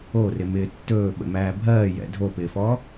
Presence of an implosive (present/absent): present